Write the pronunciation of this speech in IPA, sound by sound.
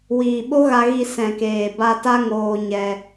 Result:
w iː˨ ɓ o˦ ɣ a˧ ɣ i˧ s ɛ̃˨ k eː˨ b a˧ t a˦ ŋ oː˧ ɲ ɛ˧

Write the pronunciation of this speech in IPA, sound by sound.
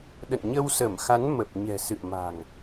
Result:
ɗ ə̰˧˨ n ɲ ə˧ w s ə˧˩ m x a˨˦ n m ə˨˩ p̚ ɲ ɛ̤˨˩ s ɨ̰˧˨ ə̯ m a̤˨˩ ŋ

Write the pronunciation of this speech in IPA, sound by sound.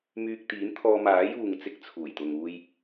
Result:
m yː˧ k̚ t̪ iː˨˥ n t̪ʰ ɔː˧ m aː˨˥ j uː˨ ŋ t͡s ɪ˨˥ k̚ t͡sʰ uː˨˩ j t̪ ʊ˨ ŋ uː˧ j

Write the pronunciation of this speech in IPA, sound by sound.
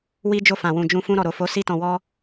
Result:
w i˦ d͡ʒ o˦˨ f ã˨ w ũ˨ d͡ʒ ũ˧ f ũ˧ ɾ ɔ˨ ɾ o˨ f o˨˦ s i˧ t ɔ̃˨ w ɔ˧

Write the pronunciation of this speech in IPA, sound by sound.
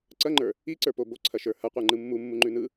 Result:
ǀ ɐ ŋ͡ǃ ə˞ | i ǀ ə˞ p o b o ǀʰ ɐ ʃ ə˞ h ɐ qʷ ə˞ ŋ͡ǃ ɯ mː u mː u ŋ͡ǃ ʉ n ɯ

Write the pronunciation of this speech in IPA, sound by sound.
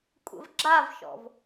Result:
kʷʼ ə̰ v ɡ͡ǁ a v ʃ ɔ̰ v

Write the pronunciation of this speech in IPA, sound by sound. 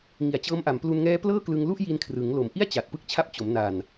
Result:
ŋ i˨˩ a̯ t͡ɕ ɤː˦˥ m ʔ a˩˦ m p l u˧ n ŋ ɛː˦˥ p l ɤː˥˩ k l ɯ˧ ŋ l u˥˩ ʔ j i˧ n kʰ r ɯ˩˦ ŋ l o˩˦ m ʔ i˥˩ a̯ t͡ɕ a˨˩ t̚ p ɯ˥˩ k̚ t͡ɕʰ a˦˥ p̚ t͡ɕ o˩˦ m n a˨˩ n

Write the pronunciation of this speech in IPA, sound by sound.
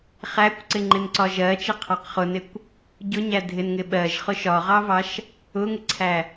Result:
χ æ kʷ ǀ ɪ ŋ͡ǃ ɪ n ǀ ɒ ʒ ɜ t͡ʃ ɪ qʰ ɑ q χ ʊ n ɪ kʷ | ɟ ʊ ɲ æ dʱ ɪ n ŋ ɪ ɓ ɜ ʒ χ ʊ ʃ ɒ ʁ ɑ v ɑ ʃ | ʊ ŋ ɪ ǀʰ æ

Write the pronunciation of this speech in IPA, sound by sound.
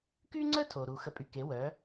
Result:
k y˥ ŋ͡ǀ ə˥ tʰ o˩ ɾ u˩ x ə˧ pʼ y˧ k e˩˥ w œ˩˥

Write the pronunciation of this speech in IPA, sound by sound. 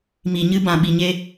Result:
m i˨ ɲ ɨ˧ b ã˨ ɓ i˨ ɲ e˧

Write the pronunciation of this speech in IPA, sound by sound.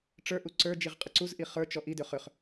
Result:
ʈ͡ʂ ə˞ ʔ u ǀ ə˞ d͡ʒ i ʁ qʼ ə ǀ u z ʔ i χ ə˞ t͡ʃ ɔ ʔ i d ʏ χ ʏ χ

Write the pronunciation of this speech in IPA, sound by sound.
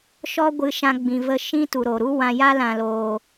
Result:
ʃ ɔ˦ ɡʷ ɨ˧ ʃ ã˧ ɡ͡b ĩ˨ v ə˧ ʃ ĩ˦ t u˨ ɾ o˨ ɾ u˦ w ã˧ j a˦ l ã˨ l oː˨

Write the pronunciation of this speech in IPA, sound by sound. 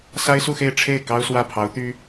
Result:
s a˥ ɪ̯ s u˥˧ x e˥˧ ɪ̯ ʈ͡ʂʰ e˥˩ ɪ̯ k ɑ˥ ʊ̯ s w ä˥˩ pʰ ɑ˧˥ ʊ̯ t̪ y˥

